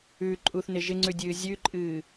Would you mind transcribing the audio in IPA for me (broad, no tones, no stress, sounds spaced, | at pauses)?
ʉ ǃʼ u θ n ɪ ʒ ɪ ŋ͡ǀ ʉ dʲ ɨː zʲ ʉ ǃʼ ɨː